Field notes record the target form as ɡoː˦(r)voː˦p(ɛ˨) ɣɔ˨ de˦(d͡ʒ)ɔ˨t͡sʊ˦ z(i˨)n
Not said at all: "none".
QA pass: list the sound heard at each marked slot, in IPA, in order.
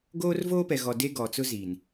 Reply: r, ɛ˨, ɡ, i˨

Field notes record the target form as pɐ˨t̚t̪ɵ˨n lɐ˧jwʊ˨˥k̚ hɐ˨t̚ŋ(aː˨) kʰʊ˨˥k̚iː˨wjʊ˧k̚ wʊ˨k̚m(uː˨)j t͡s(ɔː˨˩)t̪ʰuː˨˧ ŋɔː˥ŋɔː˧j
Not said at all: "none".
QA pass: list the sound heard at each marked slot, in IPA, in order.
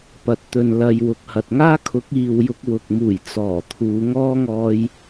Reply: aː˥, uː˨˩, ɔː˨˩

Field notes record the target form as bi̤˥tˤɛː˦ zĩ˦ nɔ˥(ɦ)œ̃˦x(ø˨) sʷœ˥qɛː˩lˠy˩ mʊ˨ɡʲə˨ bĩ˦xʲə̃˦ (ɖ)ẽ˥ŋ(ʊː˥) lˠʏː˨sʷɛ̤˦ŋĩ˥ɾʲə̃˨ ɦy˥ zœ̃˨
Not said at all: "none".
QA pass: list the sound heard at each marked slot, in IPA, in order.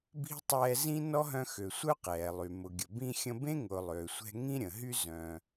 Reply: ɦ, ø˨, b, ʊː˨

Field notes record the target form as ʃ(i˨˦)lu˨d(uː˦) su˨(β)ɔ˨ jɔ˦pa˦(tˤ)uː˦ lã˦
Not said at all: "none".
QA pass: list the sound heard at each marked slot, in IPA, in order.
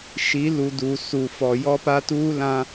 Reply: i˨˦, uː˨, f, t

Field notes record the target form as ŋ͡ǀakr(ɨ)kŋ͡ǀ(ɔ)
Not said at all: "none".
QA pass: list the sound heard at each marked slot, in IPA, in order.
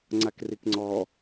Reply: i, ɔ

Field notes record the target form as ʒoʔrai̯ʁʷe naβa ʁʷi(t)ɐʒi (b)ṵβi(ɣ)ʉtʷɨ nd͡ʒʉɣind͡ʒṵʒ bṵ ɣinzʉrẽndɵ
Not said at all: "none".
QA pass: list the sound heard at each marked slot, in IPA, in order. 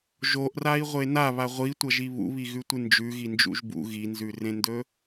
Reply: tʷ, β, ɣ

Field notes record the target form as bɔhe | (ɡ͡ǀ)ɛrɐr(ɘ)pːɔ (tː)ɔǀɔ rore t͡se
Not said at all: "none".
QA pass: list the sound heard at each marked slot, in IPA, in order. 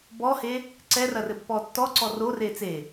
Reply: ǀ, ɘ, tː

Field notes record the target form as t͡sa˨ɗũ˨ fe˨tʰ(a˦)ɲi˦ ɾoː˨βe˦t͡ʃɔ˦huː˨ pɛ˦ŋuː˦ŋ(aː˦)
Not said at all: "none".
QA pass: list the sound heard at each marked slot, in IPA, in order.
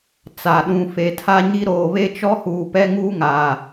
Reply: a˦, aː˨

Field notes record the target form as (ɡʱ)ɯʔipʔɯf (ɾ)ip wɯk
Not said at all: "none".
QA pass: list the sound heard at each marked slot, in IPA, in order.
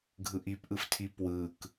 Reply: ɡʱ, tʰ

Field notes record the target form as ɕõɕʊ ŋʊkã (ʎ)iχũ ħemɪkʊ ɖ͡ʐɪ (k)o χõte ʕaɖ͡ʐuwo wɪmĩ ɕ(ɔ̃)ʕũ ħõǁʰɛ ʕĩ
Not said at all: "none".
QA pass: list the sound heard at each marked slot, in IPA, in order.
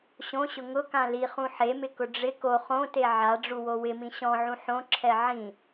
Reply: l, k, ɔ̃

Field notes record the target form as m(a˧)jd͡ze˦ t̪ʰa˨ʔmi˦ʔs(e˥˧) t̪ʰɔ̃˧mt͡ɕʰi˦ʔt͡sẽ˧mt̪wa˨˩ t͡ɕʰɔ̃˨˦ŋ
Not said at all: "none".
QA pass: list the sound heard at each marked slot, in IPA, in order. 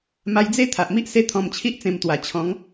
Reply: a˧, e˥˧

